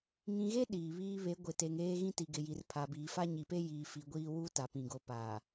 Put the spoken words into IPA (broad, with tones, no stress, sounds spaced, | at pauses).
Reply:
ŋ ĩ˨ ɣ e˦ ɗ iː˨ β iː˦ β e˨˦ ɡʷ ɪ˨ t e˨ ŋ eː˦ ɣ ĩ˦ t i˨ ɡ ɪ˨ j i˨ r pʰ a˨ b iː˨ f a˦ ɲ i˨ p e˦ j iː˨ f i˨ ɡʷ iː˦ w u˦ t a˨ p ĩ˨ ɡ o˨ p aː˨